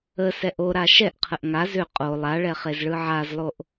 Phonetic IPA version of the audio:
ə s ɛ ʔ o ɾ a ʃ ɛ ʔ qʰ ə ʔ ŋ a z ʏ qʼ o lˠ a ɭ ɛ χ e z ɭ ɯ ʕ a z lˠ o ʔ

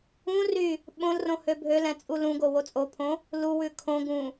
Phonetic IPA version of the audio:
ũ r y | ɓ õ l r õ h ø bʱ ø l ɛ̃ t͡sʼ u l ũ ɡ o w o t͡sʼ o pʰ õ | l u w ʉ kʰ õ ɡ ũ

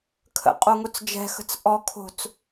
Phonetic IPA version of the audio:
kʰ ə̰ qʼ o ŋ o t͡s d͡ʒ ɛ̤ x ə̤ t͡s ʔ ɔ kʰ o̤ t͡s

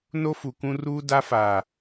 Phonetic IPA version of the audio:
n o˦ f u˨ k ũ˦ r uː˦ d a˦ f a˨

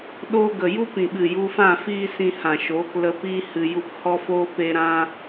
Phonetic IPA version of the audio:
ɗ oː˧ ɡ ə˨ j u˦ p ĩ˨ ɓ ɨ˨ j u˧ f ã˦˨ f iː˦ s ĩ˧ h ã˨ ʃ oː˨˦ k l ə˧ p iː˦ h ɨ˧ j u˦ p h ɔ˦ f oː˦ p e˦ ɾ ã˦

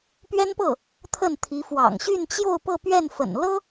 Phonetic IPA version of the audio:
p ɥ ɛ˥ n p ɤ˥˩ | t̪ʰ ə˥˩ n t̪ʰ i˧˥ f w ɑ̰˨˩ ŋ ɕ y˥˧ n t͡ɕ j o˥˧ ʊ̯ p ɤ˥˧ p ɥ ɛ˥˩ n f ə̰˨˩ n l ɤ˥

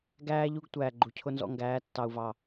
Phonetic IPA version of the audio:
ɡ æː˦ ʎ u˦ ɡ tʷ æː˨ ɡ͡ǃ u˨ cʰ ʊ˦ n z ɔ̰˦ ŋ ɡ æː˨˦ tː ɑ˨ u̯ v ɑ˨

